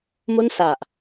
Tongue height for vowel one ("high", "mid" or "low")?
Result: mid